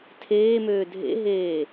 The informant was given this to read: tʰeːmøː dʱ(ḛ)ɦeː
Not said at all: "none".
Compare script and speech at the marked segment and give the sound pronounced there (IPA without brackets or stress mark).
ḛ